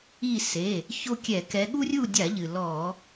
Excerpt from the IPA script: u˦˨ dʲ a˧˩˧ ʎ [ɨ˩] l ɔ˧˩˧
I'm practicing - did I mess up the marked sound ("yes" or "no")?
no